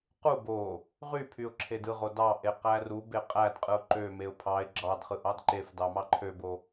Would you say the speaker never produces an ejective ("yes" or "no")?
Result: no